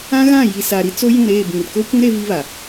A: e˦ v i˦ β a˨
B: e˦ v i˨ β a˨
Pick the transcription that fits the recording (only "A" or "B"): A